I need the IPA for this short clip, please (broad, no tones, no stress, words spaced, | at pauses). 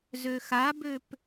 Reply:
zøxabøp